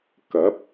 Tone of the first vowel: rising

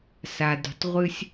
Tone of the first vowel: low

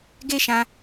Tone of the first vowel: high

